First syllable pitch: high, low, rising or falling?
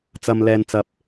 high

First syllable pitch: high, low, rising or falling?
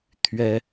high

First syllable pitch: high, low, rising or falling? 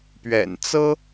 low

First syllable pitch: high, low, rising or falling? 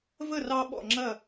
falling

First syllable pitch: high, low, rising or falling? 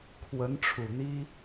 rising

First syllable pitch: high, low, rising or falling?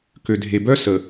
low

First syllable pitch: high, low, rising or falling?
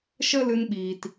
high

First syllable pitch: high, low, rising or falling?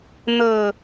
low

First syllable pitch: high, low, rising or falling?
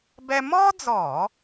high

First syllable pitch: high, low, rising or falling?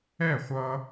falling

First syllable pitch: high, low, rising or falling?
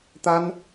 high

